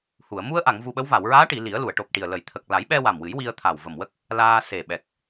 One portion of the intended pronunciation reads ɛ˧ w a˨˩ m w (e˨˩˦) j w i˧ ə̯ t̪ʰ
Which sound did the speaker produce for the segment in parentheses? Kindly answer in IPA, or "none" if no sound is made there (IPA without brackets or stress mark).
ɨ˨˩˦